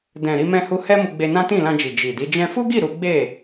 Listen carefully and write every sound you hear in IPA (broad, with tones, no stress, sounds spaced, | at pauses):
d ɛ̃˨ ɾ i˧ m ɛ̃˧ h u˧ h ɛ˦ m u˧ ɡ͡b e˧ n ã˦ t ĩ˦˨ l ã˧ d͡ʒ i˨ d͡ʒ i˨ d i˨˦ d͡ʒ ɛ̃˧ f u˦ ɡ i˦˨ ɾ u˨˦ ɡ͡b e˦˨